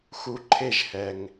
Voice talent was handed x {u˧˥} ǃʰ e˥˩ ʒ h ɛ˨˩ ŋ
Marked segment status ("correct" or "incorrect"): correct